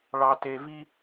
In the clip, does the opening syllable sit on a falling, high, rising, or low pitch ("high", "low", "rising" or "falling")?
low